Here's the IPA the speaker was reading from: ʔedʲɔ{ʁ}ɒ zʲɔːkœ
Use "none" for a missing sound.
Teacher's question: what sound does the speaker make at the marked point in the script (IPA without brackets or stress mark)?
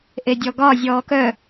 ɡ